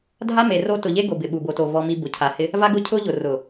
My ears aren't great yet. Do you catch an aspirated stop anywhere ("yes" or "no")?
yes